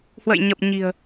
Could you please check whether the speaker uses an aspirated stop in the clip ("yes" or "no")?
no